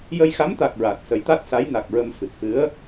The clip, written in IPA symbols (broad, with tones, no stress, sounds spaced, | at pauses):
j ə˧ j x a˧˥ m t̪ a˨˩ k̚ ɹ a˨˩ t̚ s ə˨˩˦ j t̪ a˦˥ t̚ s a˧˥ j n a˨˩ k̚ ɹ ə˧ m f ɨ˨˩ k̚ f ɨ˧˥ ə̯